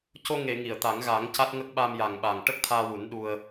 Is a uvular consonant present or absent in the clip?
absent